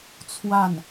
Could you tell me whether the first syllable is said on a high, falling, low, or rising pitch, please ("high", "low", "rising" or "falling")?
falling